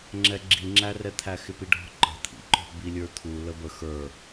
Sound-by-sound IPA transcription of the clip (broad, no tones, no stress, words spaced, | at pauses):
ŋ͡ǁɛɡ͡ǁiŋ͡ǁærɛ t̪ʰæxɪpiɖʱɔ̤ ǃə̤t̪ʰḭǃɔ̤ bilʲə˞t̪ʰu ləbə xə˞